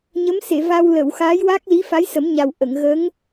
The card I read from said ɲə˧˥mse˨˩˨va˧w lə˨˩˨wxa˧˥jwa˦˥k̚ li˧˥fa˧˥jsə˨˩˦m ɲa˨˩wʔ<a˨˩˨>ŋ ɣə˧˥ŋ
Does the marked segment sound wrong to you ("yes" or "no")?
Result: yes